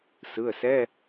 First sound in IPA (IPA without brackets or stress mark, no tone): s